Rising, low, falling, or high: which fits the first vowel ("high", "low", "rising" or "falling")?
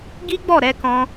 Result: high